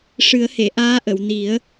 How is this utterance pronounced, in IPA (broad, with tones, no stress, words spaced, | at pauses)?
ʂɨ˨˩˦ə̯he˨˩˨ʔaː˧˥ʔə˨˩˨w ni˨˩˦ə̯